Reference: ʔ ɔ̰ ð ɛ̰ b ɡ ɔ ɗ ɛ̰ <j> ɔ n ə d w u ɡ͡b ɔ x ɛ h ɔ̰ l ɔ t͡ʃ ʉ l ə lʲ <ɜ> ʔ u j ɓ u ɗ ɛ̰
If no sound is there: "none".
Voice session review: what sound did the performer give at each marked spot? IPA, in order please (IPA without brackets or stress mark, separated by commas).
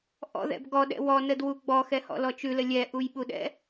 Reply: w, ɛ